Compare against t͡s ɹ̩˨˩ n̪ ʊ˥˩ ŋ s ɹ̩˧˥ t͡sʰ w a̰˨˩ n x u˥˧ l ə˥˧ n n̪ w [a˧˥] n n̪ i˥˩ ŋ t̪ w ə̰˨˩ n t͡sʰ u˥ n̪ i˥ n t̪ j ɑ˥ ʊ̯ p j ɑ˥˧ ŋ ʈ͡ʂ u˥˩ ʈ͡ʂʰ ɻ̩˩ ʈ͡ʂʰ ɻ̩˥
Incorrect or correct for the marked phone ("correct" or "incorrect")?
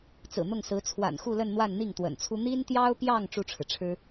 incorrect